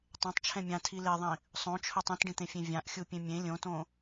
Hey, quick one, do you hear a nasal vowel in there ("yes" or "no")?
yes